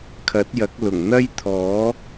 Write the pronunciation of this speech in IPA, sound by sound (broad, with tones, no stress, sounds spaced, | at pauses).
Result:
kʰ ɐ˨˥ t̚ j ɐ˨˥ k̚ l ʊ˨˩ ŋ n̪ ɐ˥ j t̪ʰ ɔː˨˥